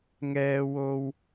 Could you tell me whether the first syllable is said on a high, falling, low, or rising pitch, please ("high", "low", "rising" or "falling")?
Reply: high